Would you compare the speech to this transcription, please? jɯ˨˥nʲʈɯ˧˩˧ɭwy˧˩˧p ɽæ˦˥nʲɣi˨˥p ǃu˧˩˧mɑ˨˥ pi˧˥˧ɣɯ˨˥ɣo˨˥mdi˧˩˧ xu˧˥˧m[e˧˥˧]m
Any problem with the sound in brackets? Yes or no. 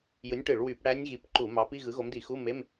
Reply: no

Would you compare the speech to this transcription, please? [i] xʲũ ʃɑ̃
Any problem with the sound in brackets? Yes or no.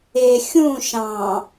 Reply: yes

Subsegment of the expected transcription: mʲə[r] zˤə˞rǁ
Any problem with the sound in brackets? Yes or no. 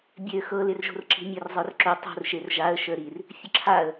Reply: no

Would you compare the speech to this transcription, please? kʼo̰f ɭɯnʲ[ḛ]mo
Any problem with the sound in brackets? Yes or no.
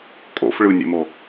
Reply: no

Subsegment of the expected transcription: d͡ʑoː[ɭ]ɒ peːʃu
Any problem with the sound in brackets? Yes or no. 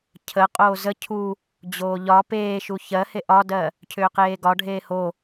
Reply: yes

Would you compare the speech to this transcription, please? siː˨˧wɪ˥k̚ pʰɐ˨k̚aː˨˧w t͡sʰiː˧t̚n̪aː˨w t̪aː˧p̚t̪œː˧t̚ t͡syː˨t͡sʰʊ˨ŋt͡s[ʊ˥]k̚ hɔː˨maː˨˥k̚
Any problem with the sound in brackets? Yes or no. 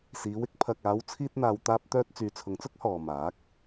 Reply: no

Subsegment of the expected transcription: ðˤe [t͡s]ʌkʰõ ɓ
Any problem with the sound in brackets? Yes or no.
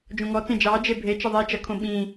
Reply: yes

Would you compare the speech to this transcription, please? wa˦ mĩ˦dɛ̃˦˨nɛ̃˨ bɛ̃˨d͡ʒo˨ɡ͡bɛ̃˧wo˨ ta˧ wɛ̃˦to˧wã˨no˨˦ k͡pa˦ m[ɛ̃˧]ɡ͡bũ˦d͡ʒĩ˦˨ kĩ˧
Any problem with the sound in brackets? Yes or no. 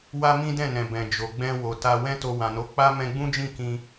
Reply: no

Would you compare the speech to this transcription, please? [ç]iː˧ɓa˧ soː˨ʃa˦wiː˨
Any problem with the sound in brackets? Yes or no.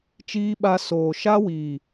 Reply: yes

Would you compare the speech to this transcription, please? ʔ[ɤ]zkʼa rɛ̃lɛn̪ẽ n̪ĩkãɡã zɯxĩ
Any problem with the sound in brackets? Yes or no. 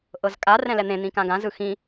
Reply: no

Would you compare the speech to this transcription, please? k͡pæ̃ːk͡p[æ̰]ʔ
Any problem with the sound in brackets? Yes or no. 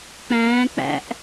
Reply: no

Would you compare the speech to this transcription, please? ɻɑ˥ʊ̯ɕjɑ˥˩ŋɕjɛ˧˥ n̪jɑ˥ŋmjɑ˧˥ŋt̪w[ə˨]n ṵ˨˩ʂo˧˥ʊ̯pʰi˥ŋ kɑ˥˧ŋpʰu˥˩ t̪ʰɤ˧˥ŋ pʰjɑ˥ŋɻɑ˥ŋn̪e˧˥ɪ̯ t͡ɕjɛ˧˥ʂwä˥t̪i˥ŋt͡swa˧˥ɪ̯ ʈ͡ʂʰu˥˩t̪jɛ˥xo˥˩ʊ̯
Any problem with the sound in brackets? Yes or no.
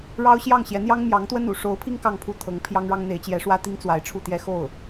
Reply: yes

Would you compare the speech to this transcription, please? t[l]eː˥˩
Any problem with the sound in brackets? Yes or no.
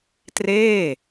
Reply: yes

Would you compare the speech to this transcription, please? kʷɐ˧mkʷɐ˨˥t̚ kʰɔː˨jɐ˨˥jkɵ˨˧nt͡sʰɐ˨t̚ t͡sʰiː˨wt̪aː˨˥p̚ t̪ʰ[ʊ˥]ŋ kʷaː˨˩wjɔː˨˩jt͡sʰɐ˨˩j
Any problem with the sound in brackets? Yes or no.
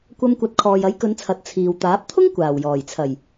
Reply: no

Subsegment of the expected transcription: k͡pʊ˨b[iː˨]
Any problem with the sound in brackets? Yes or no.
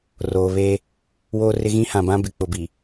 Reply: yes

